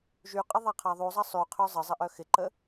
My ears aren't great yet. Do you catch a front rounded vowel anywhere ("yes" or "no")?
yes